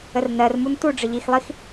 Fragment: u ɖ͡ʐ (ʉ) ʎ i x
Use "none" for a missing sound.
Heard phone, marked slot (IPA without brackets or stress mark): ə